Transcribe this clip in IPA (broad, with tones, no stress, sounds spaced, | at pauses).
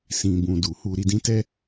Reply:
s ĩ˨ b ũ˨ d u˨ h u˧ ɾ i˧ d ĩ˦ t ɛ˧